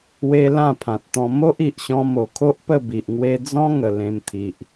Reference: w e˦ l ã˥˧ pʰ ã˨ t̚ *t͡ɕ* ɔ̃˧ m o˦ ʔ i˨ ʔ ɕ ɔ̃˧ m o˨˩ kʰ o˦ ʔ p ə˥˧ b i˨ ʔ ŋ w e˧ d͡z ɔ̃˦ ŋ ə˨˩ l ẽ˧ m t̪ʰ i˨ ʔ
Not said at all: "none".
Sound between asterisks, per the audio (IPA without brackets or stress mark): t̪